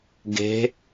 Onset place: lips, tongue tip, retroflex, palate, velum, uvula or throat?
velum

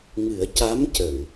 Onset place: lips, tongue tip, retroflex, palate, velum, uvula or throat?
velum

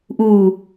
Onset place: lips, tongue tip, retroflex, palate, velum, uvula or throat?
throat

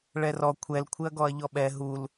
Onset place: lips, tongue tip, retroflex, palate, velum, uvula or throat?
retroflex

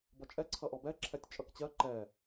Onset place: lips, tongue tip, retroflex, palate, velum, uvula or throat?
lips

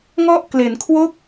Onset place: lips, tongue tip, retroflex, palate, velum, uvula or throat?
velum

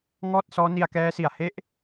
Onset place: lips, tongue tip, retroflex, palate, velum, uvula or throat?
velum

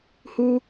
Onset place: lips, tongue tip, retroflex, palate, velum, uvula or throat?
throat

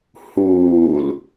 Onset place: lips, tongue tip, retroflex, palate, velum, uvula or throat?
throat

